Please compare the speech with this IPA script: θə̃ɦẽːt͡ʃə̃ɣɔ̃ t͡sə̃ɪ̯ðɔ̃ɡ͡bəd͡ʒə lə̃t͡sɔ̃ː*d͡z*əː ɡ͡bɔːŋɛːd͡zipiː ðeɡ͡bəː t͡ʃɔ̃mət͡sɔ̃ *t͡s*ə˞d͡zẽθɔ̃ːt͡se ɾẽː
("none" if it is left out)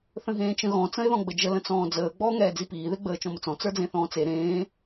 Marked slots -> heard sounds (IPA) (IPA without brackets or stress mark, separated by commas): d͡z, t͡s